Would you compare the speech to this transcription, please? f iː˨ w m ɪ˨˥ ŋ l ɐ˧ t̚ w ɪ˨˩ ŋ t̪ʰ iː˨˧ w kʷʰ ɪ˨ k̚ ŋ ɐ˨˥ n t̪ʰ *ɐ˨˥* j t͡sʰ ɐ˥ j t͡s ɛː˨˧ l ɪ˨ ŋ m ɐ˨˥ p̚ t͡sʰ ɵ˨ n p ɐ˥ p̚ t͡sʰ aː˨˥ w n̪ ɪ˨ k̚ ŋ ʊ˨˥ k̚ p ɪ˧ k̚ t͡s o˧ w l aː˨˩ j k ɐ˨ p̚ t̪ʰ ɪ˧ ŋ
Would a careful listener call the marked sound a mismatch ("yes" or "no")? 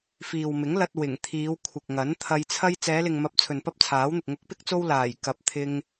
yes